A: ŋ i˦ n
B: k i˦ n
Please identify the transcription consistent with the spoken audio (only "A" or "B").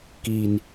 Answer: B